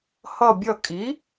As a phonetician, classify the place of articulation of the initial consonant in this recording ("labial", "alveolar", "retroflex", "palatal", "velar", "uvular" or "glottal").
glottal